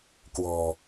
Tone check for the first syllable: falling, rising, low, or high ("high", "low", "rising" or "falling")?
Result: low